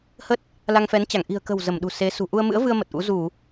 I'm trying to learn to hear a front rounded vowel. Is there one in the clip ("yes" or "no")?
no